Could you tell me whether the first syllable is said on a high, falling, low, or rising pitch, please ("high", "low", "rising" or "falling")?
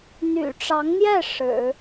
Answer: low